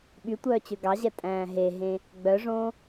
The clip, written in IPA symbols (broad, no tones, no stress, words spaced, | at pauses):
ɓytʷœːt͡ɕø ɡɑʑɛtʼæ̃ː ɦeɦẽ | ɡ͡bœʐõː